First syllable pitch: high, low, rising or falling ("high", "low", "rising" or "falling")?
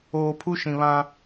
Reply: low